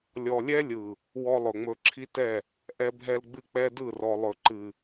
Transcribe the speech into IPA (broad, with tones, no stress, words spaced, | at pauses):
lʲɔ˨lʲɛ˦lʲɯ˨ | wɔ˦lˠɵ˨ŋ͡mɵ˦ ǁʰi˦tɛ˦˨ | ʔɛ˦bʱɛ˦lɡ͡bɨ˦k͡pɛ˦ dɯ˦˨rɔ˨lˠɵ˨ ǃɨ˨